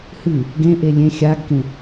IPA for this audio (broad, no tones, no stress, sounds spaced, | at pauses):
h ɨ | ɡ ẽ ʔ e lʲ ẽ xʲ a ɡ k ẽ